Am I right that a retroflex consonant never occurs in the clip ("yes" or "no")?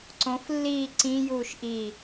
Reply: yes